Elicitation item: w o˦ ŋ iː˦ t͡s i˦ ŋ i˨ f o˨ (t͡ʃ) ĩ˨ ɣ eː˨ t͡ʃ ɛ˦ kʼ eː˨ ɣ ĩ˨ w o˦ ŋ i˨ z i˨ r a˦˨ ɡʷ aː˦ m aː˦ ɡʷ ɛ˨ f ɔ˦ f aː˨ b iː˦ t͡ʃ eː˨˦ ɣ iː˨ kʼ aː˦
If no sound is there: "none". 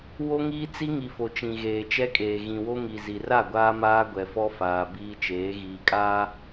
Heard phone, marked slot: t͡ʃ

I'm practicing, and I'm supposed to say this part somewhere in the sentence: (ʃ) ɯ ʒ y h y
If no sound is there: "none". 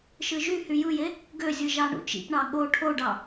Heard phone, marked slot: ʃ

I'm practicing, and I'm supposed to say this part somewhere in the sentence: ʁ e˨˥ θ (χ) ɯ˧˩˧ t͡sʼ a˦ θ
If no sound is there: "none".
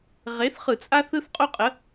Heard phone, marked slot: χ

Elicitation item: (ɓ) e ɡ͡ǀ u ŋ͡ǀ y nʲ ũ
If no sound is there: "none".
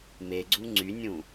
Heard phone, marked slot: m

